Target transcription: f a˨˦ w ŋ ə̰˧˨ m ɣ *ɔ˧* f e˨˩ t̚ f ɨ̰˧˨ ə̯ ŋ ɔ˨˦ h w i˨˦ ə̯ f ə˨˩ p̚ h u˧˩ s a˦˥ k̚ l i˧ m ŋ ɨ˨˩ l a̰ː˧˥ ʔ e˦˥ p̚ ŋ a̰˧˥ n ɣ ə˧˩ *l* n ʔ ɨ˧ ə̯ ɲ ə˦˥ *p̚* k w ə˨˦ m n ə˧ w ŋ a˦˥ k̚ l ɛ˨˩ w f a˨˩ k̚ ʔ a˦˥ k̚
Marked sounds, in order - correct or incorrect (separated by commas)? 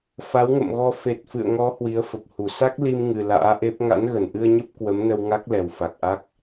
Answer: correct, incorrect, correct